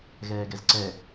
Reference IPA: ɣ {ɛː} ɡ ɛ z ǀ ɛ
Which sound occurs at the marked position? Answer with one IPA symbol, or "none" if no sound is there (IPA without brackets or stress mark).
ɛː